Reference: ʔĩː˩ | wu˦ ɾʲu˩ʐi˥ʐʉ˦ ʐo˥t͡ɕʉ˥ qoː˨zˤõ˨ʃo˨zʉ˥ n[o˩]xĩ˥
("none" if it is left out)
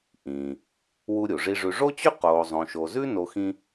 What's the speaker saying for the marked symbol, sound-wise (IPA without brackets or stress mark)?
o˦